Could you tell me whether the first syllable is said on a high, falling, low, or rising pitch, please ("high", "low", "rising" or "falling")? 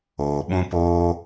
low